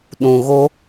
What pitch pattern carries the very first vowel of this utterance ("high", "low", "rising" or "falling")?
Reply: low